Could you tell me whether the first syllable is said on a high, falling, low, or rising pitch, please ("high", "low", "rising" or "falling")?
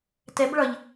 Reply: rising